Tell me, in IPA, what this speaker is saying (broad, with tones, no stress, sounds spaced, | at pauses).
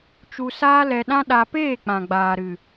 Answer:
t͡ʃ u˧ s aː˦ l ɛ˧ ɗ ã˦ ɗ a˧ p eː˦˨ k͡p ã˨ ɡ͡b aː˨ ɾ ɨ˨